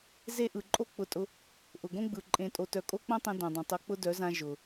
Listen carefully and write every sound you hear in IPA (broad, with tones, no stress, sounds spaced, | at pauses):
z e˦ ʔ ɯ˨ ǃʼ o˦ k͡p ʊ˧ tʼ ʊ˧ | ʔ ʊ˨ ɡ õ˦ ɡ͡b ɯ˨ ǃʼ ẽ˧ tʼ o˧ t œ˧ kʼ o˦ k͡p õ˦ tˤ ẽ˧ d õ˨ dˤ õ˨ tˤ o˧ k͡p ʊ˦ d œ˨˦ z ã˧ ʒ ʊ˨